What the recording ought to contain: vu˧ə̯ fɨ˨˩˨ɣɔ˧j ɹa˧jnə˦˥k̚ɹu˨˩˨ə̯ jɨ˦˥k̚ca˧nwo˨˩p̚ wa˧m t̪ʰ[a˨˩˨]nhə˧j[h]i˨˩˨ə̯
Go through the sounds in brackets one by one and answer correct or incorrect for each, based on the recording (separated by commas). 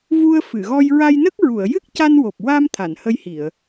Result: correct, correct